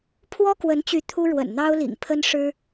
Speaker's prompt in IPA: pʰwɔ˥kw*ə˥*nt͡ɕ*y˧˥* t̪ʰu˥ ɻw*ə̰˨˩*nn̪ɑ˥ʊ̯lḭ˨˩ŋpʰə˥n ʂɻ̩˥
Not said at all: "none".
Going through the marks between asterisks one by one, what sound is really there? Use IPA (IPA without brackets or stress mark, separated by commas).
ə˧˥, y˧˥, ə̰˨˩